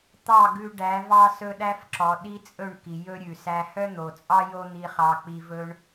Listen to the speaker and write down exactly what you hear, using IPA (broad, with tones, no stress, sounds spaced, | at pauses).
t̪ ɑ˦˨ ɡ ʉ˧ ɖ æ˨˦ v ɑ˦ s ɵ˦ ɗ æ˦ f ǁ ɔ˨ ɗ i˦ t͡sʼ ɵ˦˨ ɳ k i˨ j ɵ˦ ɾʲ ʉ˨ s æ˧ h œ˦ n̪ o˨ t͡sʼ ɑ˦ j o˦ n̪ i˧ χ ɑ˧ k͡p i˧ v ɵ˧ ɳ